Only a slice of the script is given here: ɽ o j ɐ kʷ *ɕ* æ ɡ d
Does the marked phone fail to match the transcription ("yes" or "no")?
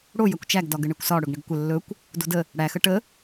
yes